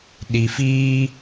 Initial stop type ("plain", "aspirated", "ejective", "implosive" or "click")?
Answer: implosive